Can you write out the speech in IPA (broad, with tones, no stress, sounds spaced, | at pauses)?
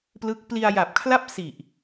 p l ɯ˦˥ k̚ p l i˧ a̯ j a˨˩ p̚ kʰ l a˥˩ p̚ s i˨˩ ʔ